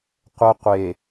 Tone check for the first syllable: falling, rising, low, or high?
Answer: high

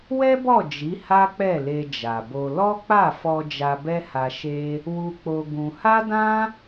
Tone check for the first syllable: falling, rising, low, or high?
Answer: high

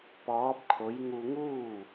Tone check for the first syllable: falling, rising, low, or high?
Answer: rising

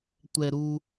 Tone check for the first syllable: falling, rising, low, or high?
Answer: low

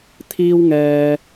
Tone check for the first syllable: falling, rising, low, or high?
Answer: high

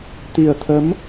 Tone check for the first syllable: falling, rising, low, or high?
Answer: low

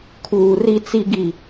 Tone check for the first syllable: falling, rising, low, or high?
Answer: low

